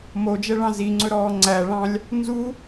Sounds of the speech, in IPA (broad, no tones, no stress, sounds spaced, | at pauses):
m o d͡ʒ ɛ ɭ ɑ̃ z i ŋ͡ǀ ɵ ɾ ɔː ŋ͡ǀ æ ɭ ɑ̃ lʲ | n z u